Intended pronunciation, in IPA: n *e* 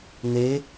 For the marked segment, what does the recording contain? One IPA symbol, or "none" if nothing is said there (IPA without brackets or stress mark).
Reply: e